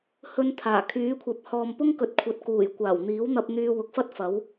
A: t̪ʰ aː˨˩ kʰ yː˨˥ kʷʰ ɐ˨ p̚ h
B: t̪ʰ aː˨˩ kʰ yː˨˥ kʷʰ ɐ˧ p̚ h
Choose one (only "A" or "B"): A